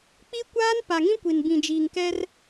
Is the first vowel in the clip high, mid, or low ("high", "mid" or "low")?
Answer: high